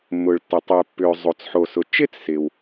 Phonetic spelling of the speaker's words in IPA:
mː ʊː˩ ɭ tː ə˩ tˤ ʏː˩ pː ʏː˩ zˤ o˩ t͡s ħ o˩ s ʊ˩ t͡ʃ ɪ˥ t͡s s ɪ˩ w

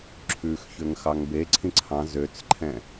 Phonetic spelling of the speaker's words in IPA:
ǁʰ ʉ x ç ø ŋ x ɑ ŋ b e ǀʰ ĩ ǀʰ ɑ̃ z ø t͡s ǃʰ ɛ̃

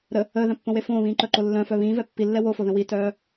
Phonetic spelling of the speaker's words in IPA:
ɾ ə | əː ð œ̃ pː õ w e f õː β ĩː ǃ œ ǃ o lː œ̃ f œ β ĩː v ɛ pː i lː ɛ w o f o ð ə̃ w i t œː

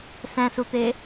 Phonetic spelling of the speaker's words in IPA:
s ɛ̃ s u t̪ e

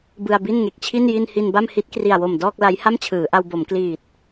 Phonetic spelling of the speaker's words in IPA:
b ɯ˧ a̯ b i˥˩ n ŋ e˨˩ k̚ t͡ɕʰ i˥˩ n j i˧ n h i˧ n b a˥˩ m h i˦˥ t̚ k r i˨˩ a̯ w o˨˩ m d ɔː˥˩ k̚ l a˦˥ j h a˥˩ m t͡ɕʰ ɯː˩˦ ʔ a˧ w b o˩˦ m k l iː˨˩ t̚

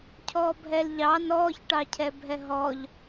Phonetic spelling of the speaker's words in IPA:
cʰ ɔ bʱ ɛ l ʎ ɑ n ɔː ç ʈ ɑ cʰ ɛ bʱ ɛ ɦ ɔ ʎ

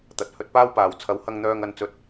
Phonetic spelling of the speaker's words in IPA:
t̪ ɐ˨ t̚ h ɵ˧ t̚ p aː˥ w p aː˨ w t͡sʰ ɐ˨˧ w h ɐ˧ ŋ n̪ œː˧ ŋ ɐ˧ n t͡s ɵ˧ t̚

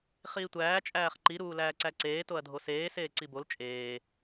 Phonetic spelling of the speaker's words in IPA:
χ iː tʷ æː t͡ʃʼ æː χ ǃ i ɾ uː l æː ǀ æ ǀ eː t o ɐ̯ dʱ o s eː s eː ǀ i b o l t͡ʃʼ eː

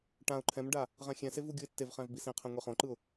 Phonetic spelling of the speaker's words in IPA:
ʈ ã ʊ̯ ǃʰ ɛ̃ m ɖ a | ʁ ɛ̃ xʲ ɛ̃ s e v u ɡʲ u ɪ̯ tː e v χ ɛ̃ v b i s ĩ qʰ ɛ̃ ŋʷ i χ õ ǃ ɯ ʊ̯

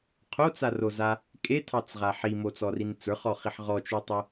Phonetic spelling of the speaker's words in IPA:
qʰ o t͡s a r o z a | kʼ e tʰ ɑ t͡s ʁ a ħ i m o t͡s ɔ r i n t͡s ə˞ χ ɔ χ i ħ ʁ ɔ t͡ʃ u tˤ ɪ

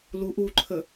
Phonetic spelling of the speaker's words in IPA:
l u ʔ u ǃʰ ə

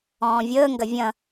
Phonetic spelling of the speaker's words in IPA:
ɔ̃ː vʲ əː ŋ ɡ ɐ vʲ ɐ̃

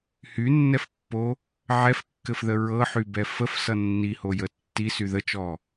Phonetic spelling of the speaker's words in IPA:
h y nː ɛ f pː o | ʕ ɛ f kː ɘ f ð ə ɹ ɤ ħ y b ɛ f ə f s ʌ nː i h o j ə tː i s y ð ə t͡ʃ ɔ

